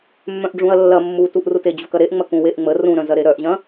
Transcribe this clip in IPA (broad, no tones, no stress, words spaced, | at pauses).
mːœ̃ʔɖ͡ʐũɐ̯lːɐ mːutuʔrute d͡ʑukɐɾeʔ ŋ͡mɐkũweʔŋ͡mə rũɾœ̃ zɐɾeɾœʔʑɐ̃